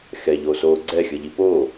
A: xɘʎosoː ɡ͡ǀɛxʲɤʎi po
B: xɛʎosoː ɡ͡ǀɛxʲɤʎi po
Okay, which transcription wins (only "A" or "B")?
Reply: B